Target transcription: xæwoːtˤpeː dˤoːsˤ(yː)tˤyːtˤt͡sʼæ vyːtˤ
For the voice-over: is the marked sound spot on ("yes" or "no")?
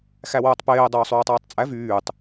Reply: yes